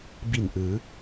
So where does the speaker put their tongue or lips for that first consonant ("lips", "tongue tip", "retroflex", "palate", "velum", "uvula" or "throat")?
lips